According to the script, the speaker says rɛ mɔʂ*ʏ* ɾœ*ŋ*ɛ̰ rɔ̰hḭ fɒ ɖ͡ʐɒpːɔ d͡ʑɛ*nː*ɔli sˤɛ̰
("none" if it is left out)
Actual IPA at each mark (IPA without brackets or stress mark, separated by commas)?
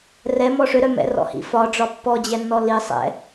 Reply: ʏ, m, nː